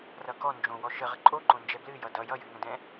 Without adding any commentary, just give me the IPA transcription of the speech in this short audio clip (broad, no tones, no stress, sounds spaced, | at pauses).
r ʌ k ɔ n d͡ʒ õ w ɔ ʃ ə ʁ ə ǃʼ o ǃ õ n d͡ʒ ɛ b l ɨ j ʌ d ʌ j ʌ j ɨ ŋ ə̃ d ɛ̃